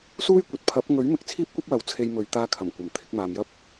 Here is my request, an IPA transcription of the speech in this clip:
s uː˥ j kʷ ɐ˨ t̚ pʰ ɐ˨˥ p̚ ŋ ɵ˨˥ ɥ m ɪ˨ k̚ t͡sʰ iː˥ p̚ kʷ ɐ˥ p̚ w ɐ˨˥ w t͡sʰ e˧ j m ɵ˨ ɥ t̪ aː˧ kʰ ɐ˨˩ m kʷ ɐ˨˩ m t̪ʰ ɪ˨˥ k̚ m aː˨ m j ɐ˥ p̚

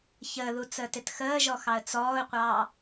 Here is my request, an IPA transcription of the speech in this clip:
ç əː ð u t͡s əː t ɪ t x əː ʒ ɔ x ɑ ə̯ t͡s ɔː ʊ̯ qʷ ɑː

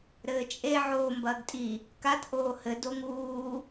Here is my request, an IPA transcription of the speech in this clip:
ɾ ɘː t͡ʃʼ e ʕ oː m b ɐː ɡ tʼ i | k a t ʔ oː h ɘ d o ŋ uː

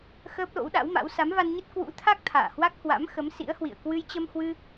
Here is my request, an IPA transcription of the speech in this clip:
x əː˦˥ p̚ l o̰˧˥ w ɗ a̰˧˥ w m a̰˧˥ w s a˨˦ m v a˧ n ɲ ə˦˥ t̚ k w ṵ˧˥ t̪ʰ a˦˥ k̚ t̪ʰ a̰ː˧˨ h w a˦˥ k̚ h w a̰˧˥ m x ə˨˦ m s ḭ˧˥ ə̯ h w ḭ˧˨ ə̯ k w ɨ˧ j t͡ɕ ə˧ m h w ɨ˧

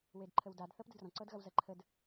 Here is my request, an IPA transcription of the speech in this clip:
w e d ǃʰ ə w d a d θ ɤ p d ə d r ɔ̃ ǀ ɤ d ɣ ɐ w z ɐ ǃʰ ə d

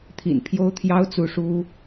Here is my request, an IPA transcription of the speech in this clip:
t̪ʰ ḭ˨˩ n pʰ j o˥ ʊ̯ t̪ʰ j ɑ˥ ʊ̯ t͡s u˥˩ ʂ u˥

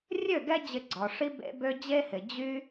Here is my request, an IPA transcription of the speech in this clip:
rʲ ø˦˨ ɡ ɛ˦ d͡ʑ ɪ˧ ɡ͡ǀ ɔ˨ ʂ i˦ b ḛ˦ b ø˦ d͡ʑ e˦ h ɪ˨ d͡ʑ y˦

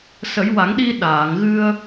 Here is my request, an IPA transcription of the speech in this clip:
s ə˨˩˦ j w a˨˩˦ ŋ ɗ i˧ ɗ aː˨˩˨ ŋ ɣ ɨ˧ ə̯

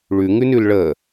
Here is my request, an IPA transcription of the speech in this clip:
ɭ ʉ ŋ ʉ n ʉ l ɭ ə

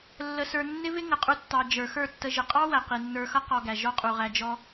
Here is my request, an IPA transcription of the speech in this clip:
lː ə˧ s ə˞˧ nː ɪ˦ v ɪ˦ ŋ ə˨ qʼ u˧ tː ɑ˨ d͡ʒ ə˞˨ x ə˞˦˨ tː ə˧ ʒ ə˨ qʼ ɑ˦ w æ˨ q i˨ nː ə˞˧ x ʌ˦ q ɔ˧ ɡ æ˨ ʒ ɔ˦ qʼ u˨ ʁ æ˧ d͡ʒ ɔ˧

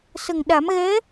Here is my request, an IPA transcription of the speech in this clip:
s ə˨˩ ŋ ɗ a˨˩˦ m ɣ ɛ˧˥

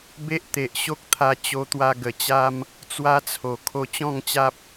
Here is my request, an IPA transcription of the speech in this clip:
b e˦ ʔ t̪ e˨ ʔ ɕ o˦ k̚ t̪ʰ a˧ t͡ɕ o˧ t̪ w a˧ ɡ ə˨˩ t͡ɕ a˦ m | t͡s w a˦ t͡sʰ o˨˩ kʰ o˧ t͡ɕ ɔ̃˥˧ ŋ t͡ɕ a˦ p̚

